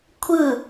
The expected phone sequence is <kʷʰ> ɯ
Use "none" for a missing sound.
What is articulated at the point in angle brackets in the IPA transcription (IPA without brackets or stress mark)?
kʷʰ